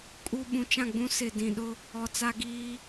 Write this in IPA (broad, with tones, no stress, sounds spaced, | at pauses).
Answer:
kʼ u˦ ɓ ũ˨ t͡ʃ ã˦˨ ɡ͡b ũ˦ s ɪ˨ d ĩ˨ ɗ ʊ˦ | ɔ˨ t͡s a˦ ɡ iː˦